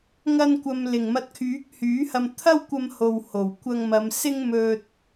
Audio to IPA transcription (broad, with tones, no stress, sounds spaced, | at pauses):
ŋ ɐ˧ n kʷ ɐ˨ m l ɪ˨˩ ŋ m ɐ˨˥ t̚ kʰ yː˨˥ k̚ h yː˨˥ h ɐ˧ m t̪ʰ ɐ˥ w kʷ ɐ˧ m h o˨ w h o˨˩ w kʷ ɐ˧ ŋ m ɐ˨˧ m s ɪ˥ ŋ m ɵ˧ t̚